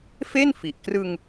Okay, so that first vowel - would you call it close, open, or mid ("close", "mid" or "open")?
mid